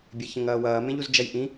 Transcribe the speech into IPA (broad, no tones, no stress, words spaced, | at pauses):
bʲeçə̃ŋ ɐːwɐːmẽʎuz d͡ʒɐjʔĩ